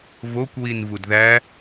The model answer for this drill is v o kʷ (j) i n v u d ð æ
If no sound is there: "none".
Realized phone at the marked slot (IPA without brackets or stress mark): w